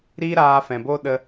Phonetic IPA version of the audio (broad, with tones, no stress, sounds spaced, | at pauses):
ɾ iː˦ ɾ aː˧ f ɛ̃˨ b o˦ ɗ ə˧